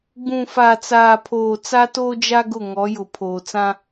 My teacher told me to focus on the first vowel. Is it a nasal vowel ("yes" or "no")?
yes